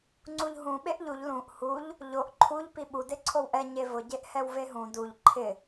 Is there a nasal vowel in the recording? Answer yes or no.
yes